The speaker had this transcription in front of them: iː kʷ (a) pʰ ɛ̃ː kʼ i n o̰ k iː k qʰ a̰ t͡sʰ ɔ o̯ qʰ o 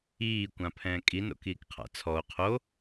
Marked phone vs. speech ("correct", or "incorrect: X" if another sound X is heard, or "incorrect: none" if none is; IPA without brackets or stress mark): incorrect: ã